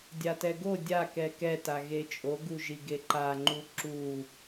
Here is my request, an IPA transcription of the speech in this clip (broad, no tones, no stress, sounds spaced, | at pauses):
dʲ a t ɛ ɡ o dʲ a k ɛ k ɛ t a ɣ e t͡ʃʼ o ɡ u ʒ i ɡ e ǃ a ŋ͡ǃ u ǁ u